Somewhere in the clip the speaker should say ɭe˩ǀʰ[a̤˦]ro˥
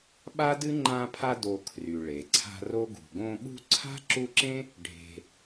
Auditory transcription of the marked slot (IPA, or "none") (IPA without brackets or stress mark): a̤˦